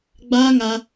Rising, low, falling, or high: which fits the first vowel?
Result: high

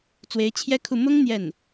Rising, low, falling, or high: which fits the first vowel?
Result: rising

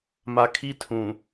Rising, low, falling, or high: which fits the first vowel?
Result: low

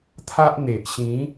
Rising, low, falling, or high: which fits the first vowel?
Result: high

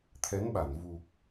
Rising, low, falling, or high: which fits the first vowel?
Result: rising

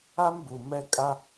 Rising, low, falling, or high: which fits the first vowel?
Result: high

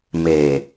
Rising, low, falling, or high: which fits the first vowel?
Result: low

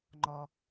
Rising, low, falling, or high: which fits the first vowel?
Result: low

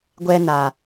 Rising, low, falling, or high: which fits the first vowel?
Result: high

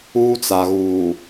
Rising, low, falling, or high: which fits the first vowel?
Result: high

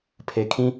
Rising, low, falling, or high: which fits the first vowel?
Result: low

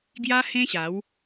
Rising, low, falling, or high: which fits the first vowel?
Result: high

